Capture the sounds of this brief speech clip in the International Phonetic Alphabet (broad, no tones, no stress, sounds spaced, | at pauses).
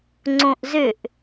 ŋ͡ǀ õ ʔ z ʏ ʔ